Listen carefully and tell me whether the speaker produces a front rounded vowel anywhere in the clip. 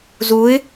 no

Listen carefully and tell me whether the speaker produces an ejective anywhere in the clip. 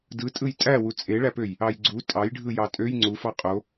yes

